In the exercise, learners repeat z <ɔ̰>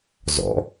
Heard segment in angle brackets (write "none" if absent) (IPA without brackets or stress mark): ɔ̰